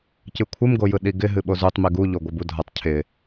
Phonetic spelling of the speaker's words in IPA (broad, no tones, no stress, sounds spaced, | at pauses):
c ɨ kʷʰ ɨ m ɡ o j ɯ ɗ i ɡ ɪ ɦ ɨ ɓ o z u tˤ m i ɡ u ʎ o ɡʷ ɨ b u dʱ ʌ tˤ cʰ ɪ